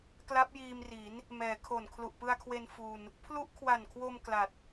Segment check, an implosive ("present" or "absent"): absent